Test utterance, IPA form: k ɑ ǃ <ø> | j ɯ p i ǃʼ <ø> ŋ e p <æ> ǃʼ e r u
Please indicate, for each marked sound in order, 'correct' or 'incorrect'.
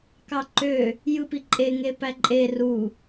correct, incorrect, correct

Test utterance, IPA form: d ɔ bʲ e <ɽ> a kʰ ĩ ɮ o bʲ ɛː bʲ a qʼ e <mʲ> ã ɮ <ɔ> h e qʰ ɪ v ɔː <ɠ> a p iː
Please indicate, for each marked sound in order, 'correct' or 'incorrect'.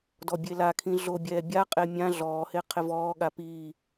incorrect, correct, incorrect, correct

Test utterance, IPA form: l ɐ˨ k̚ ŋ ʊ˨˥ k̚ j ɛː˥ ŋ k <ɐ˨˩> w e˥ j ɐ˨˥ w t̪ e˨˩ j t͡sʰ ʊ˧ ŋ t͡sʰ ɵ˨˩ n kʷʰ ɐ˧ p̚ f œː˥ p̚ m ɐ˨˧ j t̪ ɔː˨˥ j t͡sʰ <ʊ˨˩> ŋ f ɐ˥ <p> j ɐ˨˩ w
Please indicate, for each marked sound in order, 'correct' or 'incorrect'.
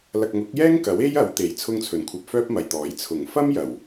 incorrect, correct, incorrect

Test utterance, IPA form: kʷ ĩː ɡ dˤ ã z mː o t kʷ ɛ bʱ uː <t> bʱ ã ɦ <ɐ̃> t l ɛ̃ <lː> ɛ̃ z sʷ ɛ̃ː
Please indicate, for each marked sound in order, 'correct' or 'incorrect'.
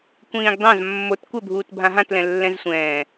correct, incorrect, correct

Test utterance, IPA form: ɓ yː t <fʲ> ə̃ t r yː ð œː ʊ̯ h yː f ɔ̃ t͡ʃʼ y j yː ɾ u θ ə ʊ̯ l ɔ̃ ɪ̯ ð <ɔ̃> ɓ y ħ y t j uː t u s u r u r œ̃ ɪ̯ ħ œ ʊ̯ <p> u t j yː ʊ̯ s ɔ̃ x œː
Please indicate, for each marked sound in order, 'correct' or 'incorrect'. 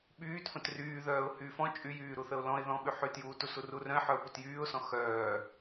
incorrect, correct, correct

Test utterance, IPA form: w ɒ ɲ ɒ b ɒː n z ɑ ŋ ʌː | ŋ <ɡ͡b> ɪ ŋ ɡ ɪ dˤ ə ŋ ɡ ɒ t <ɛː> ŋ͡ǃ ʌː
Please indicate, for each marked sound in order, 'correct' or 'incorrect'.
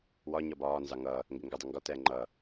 incorrect, correct

